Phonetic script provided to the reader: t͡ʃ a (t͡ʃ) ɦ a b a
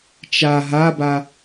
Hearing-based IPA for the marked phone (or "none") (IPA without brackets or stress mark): none